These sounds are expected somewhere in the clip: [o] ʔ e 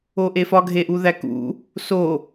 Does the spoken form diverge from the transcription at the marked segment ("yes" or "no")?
no